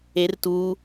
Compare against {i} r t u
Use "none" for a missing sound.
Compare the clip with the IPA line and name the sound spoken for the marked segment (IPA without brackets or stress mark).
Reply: e